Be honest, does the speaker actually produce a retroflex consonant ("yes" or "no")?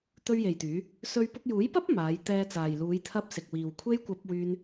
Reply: no